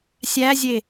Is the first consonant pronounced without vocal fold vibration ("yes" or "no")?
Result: yes